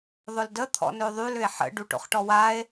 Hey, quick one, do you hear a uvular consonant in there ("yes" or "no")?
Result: yes